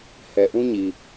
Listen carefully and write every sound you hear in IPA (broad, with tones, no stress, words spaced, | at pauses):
hɛ˨ʔũ˦ɲi˨